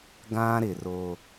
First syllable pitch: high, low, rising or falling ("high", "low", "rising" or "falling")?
high